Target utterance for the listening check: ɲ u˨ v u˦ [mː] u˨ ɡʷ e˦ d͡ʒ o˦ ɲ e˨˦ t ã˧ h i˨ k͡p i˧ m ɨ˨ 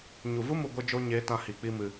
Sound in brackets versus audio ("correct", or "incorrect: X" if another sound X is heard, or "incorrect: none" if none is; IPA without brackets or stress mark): incorrect: m